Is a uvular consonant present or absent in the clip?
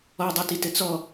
absent